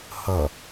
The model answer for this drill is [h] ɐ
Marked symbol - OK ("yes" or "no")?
yes